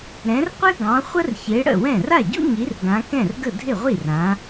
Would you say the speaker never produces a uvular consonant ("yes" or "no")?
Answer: no